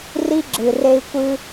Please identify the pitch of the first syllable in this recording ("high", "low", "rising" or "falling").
high